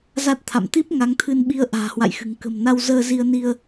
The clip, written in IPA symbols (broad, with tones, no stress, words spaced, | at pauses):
za˦˥t̚t̪ʰa̰˧˨m t̪i˦˥p̚ ŋa˨˦ŋt̪ʰɨ˧nɓi˧ə̯ ʔa̤ː˨˩hwa̰˧˨jxɨ̤˨˩ŋ kə̤˨˩mna˧w zəː˧zi˧ə̯ ni˧ə̯